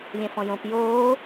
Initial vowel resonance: nasal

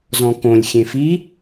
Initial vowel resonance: nasal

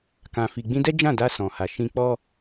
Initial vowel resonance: nasal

